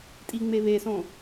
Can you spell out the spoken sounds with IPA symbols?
tʼ i ŋ͡m e β e s õ

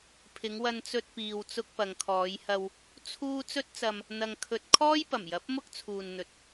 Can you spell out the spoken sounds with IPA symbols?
pʰ ɪ˨˧ ŋ w ɐ˧ n t͡s ɵ˧ t̚ p iː˨ w t͡s ʊ˧ k̚ p ɐ˨ ŋ kʰ ɔː˨˧ j h ɐ˧ w | t͡sʰ uː˥ t͡s ɵ˥ t̚ t͡s ɐ˧ m | n̪ ɐ˧ ŋ kʰ ɵ˧ t̚ kʰ ɔː˥ j p ɐ˨˩ m j ɐ˨˥ p̚ m ʊ˥ k̚ t͡sʰ uː˨ n n̪ ɵ˨ t̚

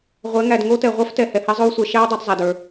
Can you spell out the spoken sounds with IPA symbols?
ʁʷ ɛ˨˦ ŋ æ˨ d ŋ o˥ t ɛ˨ ʁʷ ɛ˥ f t ɛ˨ h ɛ˨ h ɛ˥ zˤ o˥ w sʷ ɛ˨˦ ʃ æ˥ w dˤ ɛ˨˦ d zˤ æ˨ d ə˞˨

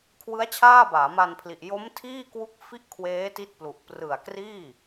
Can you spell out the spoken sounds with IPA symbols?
kʰ w ɯ˦˥ a̯ t͡ɕʰ aː˥˩ b aː˩˦ m a˧ n pʰ l i˨˩ ʔ j o˦˥ m tʰ iː˥˩ k w u˦˥ k̚ f i˥˩ ʔ kʰ w eː˦˥ t i˥˩ t̚ p l u˨˩ ʔ p r ɯ˨˩ a̯ k r iː˥˩

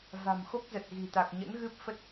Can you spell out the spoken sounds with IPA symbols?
v a̤˨˩ m x o˦˥ k̚ z ə˨˩ t̚ ɣ i̤˨˩ t̪ a˨˩ k̚ ɲ ə̰˧˥ n ɣ ɨ˦˥ p̚ f ə˦˥ t̚

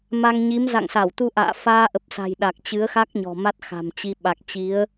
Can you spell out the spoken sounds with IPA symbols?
m a˧ ŋ ɲ i˨˦ m z a̰˧˨ ŋ s a˧˩ w t̪ u˧ ʔ a̰ː˧˨ f aː˧ ʔ ə˨˩ p̚ s a̤˨˩ j ɗ a˨˩ k̚ t͡ɕ ɨ˨˦ ə̯ x a˦˥ k̚ ɲ ɔ̤˨˩ m a˦˥ t̚ x a̤˨˩ m t͡ɕ i˧ ɓ a˨˩ k̚ t͡ɕ i˨˦ ə̯

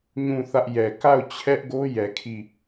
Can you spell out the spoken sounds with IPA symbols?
ɲ ũ˦˨ θ ä˦ ʔ j ɛ˨ k a˦˨ ʊ̯ t͡ɕʰ ɛ˦ ʔ ɡ o˦ j ɛ˨ kʰ i˦˨

